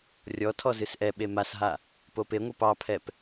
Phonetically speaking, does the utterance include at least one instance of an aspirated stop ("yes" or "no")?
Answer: yes